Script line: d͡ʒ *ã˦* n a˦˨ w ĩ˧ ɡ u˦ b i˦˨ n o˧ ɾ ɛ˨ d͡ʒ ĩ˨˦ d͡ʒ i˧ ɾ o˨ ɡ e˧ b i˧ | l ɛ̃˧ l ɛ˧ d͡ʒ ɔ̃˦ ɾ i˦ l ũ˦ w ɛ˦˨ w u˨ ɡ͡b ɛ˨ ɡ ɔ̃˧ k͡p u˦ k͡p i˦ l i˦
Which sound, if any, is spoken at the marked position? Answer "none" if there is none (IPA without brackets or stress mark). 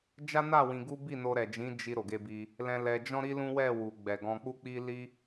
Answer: a˦